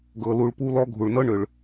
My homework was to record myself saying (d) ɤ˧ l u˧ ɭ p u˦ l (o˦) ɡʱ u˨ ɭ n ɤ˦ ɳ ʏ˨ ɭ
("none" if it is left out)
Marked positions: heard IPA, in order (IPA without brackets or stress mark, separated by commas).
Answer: ɡ, ɔ˦